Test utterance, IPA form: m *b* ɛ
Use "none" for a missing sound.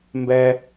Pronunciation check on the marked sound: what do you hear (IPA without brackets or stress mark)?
b